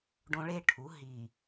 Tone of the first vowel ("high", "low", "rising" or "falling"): high